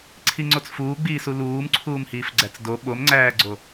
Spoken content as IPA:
ǀʰ i ŋ͡ǀ o t͡s f uː ɡ͡b iː s u l uː m ǀʰ uː m h iː f ɡ͡ǀ æ t͡s d o ɓ o m ŋ͡ǀ æː ɡ͡ǀ o

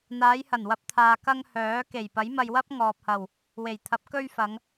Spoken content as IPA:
n̪ aː˨˧ j h ɐ˨˩ n w ɐ˧ p̚ t̪ʰ aː˨ k ɐ˧ ŋ h œː˨˥ k e˨˩ j p ɐ˨˥ j m ɐ˧ j w ɐ˥ p̚ ŋ ɔː˨ p̚ h ɐ˨˩ w | w e˨˩ j t̪ʰ ɐ˨˥ p̚ k ɵ˧ ɥ f ɐ˨˧ ŋ

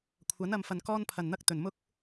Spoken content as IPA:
kʷʰ ɐ˨˥ n ɐ˨ m f ɐ˨ n k ɔː˥ n pʰ ɐ˨˩ n n̪ ɐ˥ k̚ t̪ ɵ˨˩ n m ʊ˥ k̚

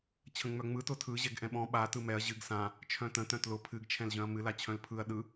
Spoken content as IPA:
t͡ɕʰ ə̃ ŋ͡m œ ŋ͡m ɯ t ʊ tʰ ɯ ʑ ɛ ɡ ʔ ɛ̃ ɓ ɔ̃ ɓ a t ɯ m ɛ ɐ̯ ʑ ɨ ɡ s ã | t͡ʃʰ œ̃ t ə̃ t œ̃ t l ʊ pʰ ɨ ɡ t͡ʃʰ ɛ̃ l ʑ œ̃ ɐ̯ m ɨ l a t͡ɕʰ œ̃ l pʰ ɯ ɐ̯ ɗ ɯ

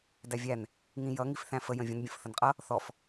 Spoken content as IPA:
d æ vʲ æ n | ŋ ĩ j ʌ ŋ i f θ æ̃ f ə j ə̃ vʲ ə̃ n bʲ ə̃ f θ ə n qʼ ʌ | θ ɔ f

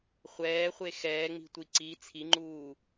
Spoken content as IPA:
χʷ ɛː χʷ e x ɛː ŋ͡m i̤ tʷ i ǀ i t͡sʰ i ŋ͡ǃ uː

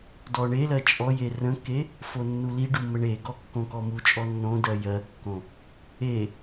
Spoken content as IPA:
d ɔ ɳ e l ɜ t͡ʃʼ ɔ j e r ə̃ kː e | f o nː u l i ɖ u m ə ɳ e ɡ ɔ kː õ k ɔ m u t͡ʃʼ ɔ nː õ d ɜ j ɜ kː õ | e

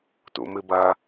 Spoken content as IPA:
t ṵ m ɨ b ɐ

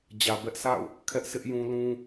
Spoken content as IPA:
d͡ʑ ä˨ b ɛ˦ ʔ s a̰˦˨ ʊ̯ | kʰ ɛ˦ ʔ s ɪ˦ ʔ j ũ˦ l ũ˦

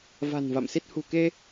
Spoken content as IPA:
v a̤˨˩ n v a̰˧˨ m s i˦˥ t̚ h ṳ˨˩ k e˧

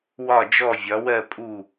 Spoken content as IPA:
w ɒ˦˨ d͡ʒ ɔ˦˨ vʲ ɒ˨˦ w ɜ˦˨ pʼ u˦˨

